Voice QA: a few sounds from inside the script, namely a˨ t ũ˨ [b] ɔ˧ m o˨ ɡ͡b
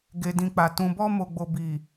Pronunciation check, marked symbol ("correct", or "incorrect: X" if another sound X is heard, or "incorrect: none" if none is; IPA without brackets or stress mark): correct